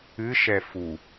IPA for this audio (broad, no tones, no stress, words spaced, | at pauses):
ɨʃɛ fu